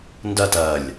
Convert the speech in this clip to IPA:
ndɜt ɜlʲ

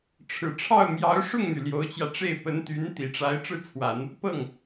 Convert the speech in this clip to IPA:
ʈ͡ʂʰɻ̩˨˩ʈ͡ʂʰɑ˥˩ʊ̯mjɑ˧˥ʊ̯ ʂʊ˥˩ŋn̪y˩ ljo˧˥ʊ̯t͡ɕjä˧ʈ͡ʂe˥˩ɪ̯ pə˧˥nt̪y˧˥nt̪i˨˩ʈ͡ʂa˧˥ɪ̯ ʈ͡ʂɻ̩˥˩t͡sʰwa˨˩˦n | pɤ˥˩ŋ

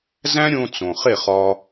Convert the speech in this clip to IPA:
zæ̃˥ɾʲõ˧ t͡sõ˩χe˥˩χɒ˧

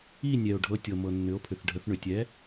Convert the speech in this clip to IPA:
i˥˨nʲɛ˩o̯ ɖʱɤ˩˥tʲɤ˩mɤ˩ nːʏ˩˥o̯pʰʏ˩θɖʱə˩˥θ ɳʏ˩tʲɛ˩˥

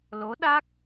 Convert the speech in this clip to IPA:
lo˧˥ɗa˦˥k̚

